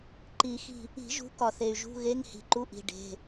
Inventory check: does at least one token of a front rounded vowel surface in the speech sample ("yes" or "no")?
yes